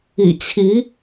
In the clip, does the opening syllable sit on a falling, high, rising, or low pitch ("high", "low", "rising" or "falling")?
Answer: low